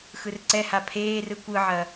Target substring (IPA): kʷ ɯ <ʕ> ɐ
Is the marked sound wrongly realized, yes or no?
no